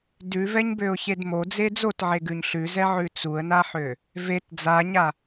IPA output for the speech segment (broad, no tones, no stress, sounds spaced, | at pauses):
d ʉ v ɛ ɲ b ø ʊ̯ ç e d m o d͡z e d͡z o t ʕ e ɡ ʉ ɲ ɬ ʉ z ɛ ʕ ʉ t͡s u ə̯ n a ħ ø | v e t d͡z a ɲ a